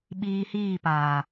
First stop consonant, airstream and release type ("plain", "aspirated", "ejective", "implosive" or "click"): implosive